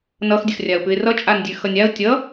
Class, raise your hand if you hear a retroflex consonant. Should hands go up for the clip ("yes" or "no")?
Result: no